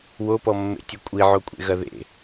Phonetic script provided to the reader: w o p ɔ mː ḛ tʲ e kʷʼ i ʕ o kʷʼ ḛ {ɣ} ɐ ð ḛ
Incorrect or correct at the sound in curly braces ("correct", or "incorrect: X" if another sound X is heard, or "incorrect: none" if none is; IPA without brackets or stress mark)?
correct